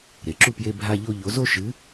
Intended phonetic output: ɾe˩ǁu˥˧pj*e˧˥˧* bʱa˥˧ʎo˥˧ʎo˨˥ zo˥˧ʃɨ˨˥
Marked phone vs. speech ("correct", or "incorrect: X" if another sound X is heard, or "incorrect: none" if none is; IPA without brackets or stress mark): correct